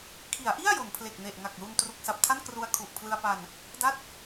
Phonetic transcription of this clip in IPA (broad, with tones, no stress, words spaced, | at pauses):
kʰi˩˦a̯ʔi˥˩a̯ jo˩˦npʰle˨˩k̚ne˨˩ʔ ŋa˨˩k̚lu˧n tru˨˩k̚sa˨˩p̚tʰa˥˩n kru˧a̯kʰu˨˩ʔpʰlɯ˧a̯pa˧n | da˥˩t̚